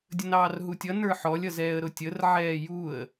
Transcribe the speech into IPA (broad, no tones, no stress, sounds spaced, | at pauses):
dʲ ə n ɑː r ɦ u tʲ ʌ n ə˞ ħ ɔ lʲ ʌ z ɛː ə̯ ɾ ʊ tʲ ə r ʕ ɛː j u ə̯